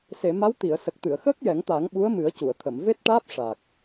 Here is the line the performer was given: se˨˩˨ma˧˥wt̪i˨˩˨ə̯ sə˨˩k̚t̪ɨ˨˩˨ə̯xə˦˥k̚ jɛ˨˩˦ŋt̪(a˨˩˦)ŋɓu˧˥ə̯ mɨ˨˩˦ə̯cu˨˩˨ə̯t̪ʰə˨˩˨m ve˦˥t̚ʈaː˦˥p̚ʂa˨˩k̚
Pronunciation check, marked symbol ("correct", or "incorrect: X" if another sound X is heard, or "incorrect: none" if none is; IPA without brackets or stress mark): correct